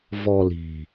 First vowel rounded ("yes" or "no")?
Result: yes